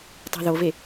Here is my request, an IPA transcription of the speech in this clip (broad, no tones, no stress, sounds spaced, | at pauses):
tˤ i̤ ð o v e